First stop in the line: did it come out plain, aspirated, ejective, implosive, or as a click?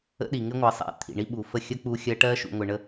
implosive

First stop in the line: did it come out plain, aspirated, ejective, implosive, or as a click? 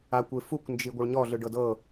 plain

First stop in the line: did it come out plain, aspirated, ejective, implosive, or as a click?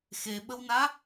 implosive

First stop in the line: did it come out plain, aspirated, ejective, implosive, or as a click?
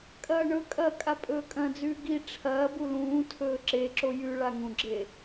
ejective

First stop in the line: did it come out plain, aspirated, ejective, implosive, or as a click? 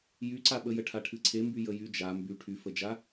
click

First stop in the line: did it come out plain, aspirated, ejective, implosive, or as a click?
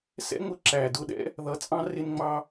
click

